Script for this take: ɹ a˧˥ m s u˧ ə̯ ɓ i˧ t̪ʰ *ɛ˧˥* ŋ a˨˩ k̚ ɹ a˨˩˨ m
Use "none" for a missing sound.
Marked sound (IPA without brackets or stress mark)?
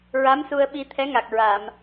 ɛ˧˥